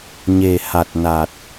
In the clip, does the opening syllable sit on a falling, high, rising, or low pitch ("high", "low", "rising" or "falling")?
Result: low